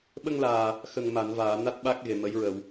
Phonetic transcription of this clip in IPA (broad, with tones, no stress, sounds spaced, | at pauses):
ɓ ə˧ ŋ l aː˨˩ | x ə˨˩ ŋ m a˨˩˨ n v aː˨˩˨ n a˦˥ t̚ ɓ a˦˥ k̚ ɣ e˨˩ m ə˧˥ j ɹ ə˨˩˨ w